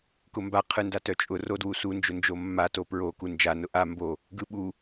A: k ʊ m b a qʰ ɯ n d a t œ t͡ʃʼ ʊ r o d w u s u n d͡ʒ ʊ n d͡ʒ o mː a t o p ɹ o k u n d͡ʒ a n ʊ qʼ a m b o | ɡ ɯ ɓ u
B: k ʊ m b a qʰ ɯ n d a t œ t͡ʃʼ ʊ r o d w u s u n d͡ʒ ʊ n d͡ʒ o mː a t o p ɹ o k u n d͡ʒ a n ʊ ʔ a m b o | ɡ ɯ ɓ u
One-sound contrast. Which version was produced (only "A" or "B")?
B